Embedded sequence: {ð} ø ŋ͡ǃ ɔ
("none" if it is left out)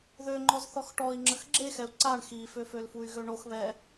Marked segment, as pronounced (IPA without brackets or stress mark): ð